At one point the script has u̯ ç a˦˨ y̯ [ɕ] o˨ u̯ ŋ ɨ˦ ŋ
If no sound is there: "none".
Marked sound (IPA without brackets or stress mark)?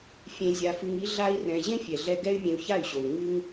ɕ